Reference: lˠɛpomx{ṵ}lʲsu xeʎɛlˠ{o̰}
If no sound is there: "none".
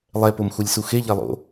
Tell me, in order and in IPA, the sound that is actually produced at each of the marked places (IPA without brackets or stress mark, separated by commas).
u, o̰